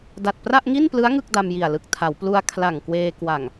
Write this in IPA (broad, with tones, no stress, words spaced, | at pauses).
da˨˩t̚pra˥˩ʔŋi˥˩nplɯ˦˥a̯ ŋɯ˥˩k̚da˧mji˨˩a̯lɯ˨˩k̚ tʰa˩˦wplu˧a̯ kʰla˨˩ŋkweː˧kwa˨˩ŋ